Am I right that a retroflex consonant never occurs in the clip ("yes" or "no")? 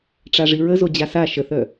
no